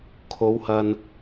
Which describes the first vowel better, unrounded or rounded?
rounded